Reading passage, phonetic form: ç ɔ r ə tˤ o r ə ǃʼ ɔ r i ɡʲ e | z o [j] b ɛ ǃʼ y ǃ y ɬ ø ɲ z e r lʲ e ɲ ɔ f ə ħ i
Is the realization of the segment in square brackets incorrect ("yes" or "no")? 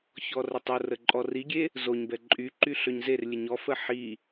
yes